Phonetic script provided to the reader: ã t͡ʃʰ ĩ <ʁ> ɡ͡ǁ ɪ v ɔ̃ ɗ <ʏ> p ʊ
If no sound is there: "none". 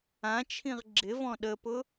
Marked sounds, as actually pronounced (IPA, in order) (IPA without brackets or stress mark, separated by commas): ʁ, ə